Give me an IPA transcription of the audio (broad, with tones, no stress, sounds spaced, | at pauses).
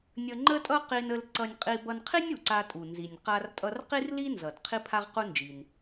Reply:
nʲ ə˧ ŋ͡ǃ ə˥ tʼ ʌ˥ q i˧ n ə˧ l ǀ ʌ˧ nʲ qʼ i˧ b ʌ˧ n qʰ i˥ nʲ u˩ ǀ a˧ tʼ u˩ n z i˩ nʲ q a˧ r tʼ ʌ˧ r q i˥ r l i˥ n z ʌ˩ d qʰ i˥ pʰ a˥ ʁ q u˥ n d͡ʒ i˩ n